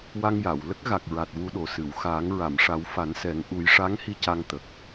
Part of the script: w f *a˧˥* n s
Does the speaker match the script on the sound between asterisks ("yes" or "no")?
no